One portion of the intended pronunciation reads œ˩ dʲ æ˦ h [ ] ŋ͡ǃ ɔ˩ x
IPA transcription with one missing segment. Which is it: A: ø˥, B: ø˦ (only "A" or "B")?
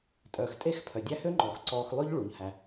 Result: A